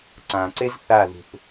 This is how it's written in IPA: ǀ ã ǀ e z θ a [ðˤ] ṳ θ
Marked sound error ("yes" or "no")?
yes